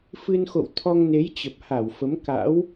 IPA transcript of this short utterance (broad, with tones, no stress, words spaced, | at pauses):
fɨ˧nxo̰˧˨w t̪ʰɔ˧ŋne˨˦j t͡ɕə˨˩p̚ha˧˩wfə˨˦m ka̰˧˥w